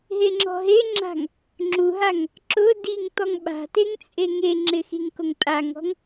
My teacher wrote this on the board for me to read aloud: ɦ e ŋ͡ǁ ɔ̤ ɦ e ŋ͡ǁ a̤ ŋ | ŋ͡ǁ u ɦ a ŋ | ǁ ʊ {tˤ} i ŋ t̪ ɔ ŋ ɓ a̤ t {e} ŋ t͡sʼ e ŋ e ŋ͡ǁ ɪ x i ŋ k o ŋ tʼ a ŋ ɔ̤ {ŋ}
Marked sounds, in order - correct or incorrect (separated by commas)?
incorrect, correct, correct